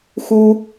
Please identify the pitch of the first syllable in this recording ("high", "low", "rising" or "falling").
high